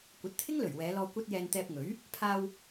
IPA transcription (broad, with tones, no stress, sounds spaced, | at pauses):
kʷ ɐ˨˥ t̚ t̪ʰ ɪ˥ ŋ l ɵ˨˩ ɥ w ɛː˨˧ l ɔː˧ kʷ ɐ˧ t̚ j ɛː˨ n t̪ ɛː˧ p̚ ŋ ɵ˨˥ ɥ | pʰ aː˧ w